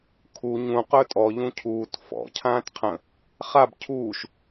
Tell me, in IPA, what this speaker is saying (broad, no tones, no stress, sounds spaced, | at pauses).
kʰ u ɲ ũ q ɵ tʼ ɔ ʎ ũ cʰ uː t f ɔ̰ cʰ ãː t qʰ ə̃ | χ a b cʰ uː ʃ